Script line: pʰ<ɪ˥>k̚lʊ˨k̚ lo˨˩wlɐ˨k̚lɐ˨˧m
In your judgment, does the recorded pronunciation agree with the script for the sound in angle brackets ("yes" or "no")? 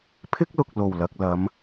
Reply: yes